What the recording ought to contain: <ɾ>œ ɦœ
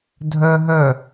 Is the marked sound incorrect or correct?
incorrect